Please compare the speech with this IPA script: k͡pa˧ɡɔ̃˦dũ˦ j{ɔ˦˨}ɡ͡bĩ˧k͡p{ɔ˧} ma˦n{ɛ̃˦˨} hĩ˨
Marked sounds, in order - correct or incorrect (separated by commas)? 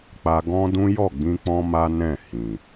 correct, incorrect, correct